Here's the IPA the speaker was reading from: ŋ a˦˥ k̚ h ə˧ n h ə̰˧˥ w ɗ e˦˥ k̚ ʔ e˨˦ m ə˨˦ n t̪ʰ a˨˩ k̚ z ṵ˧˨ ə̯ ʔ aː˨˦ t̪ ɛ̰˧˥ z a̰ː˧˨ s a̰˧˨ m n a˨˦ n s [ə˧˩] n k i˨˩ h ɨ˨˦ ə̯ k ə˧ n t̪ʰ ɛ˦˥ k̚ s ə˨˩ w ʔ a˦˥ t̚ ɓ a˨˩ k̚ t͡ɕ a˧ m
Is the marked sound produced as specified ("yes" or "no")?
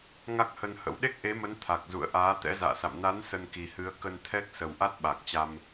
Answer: no